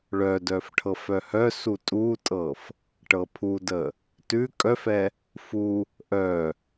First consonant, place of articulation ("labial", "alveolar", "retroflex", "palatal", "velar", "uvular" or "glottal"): retroflex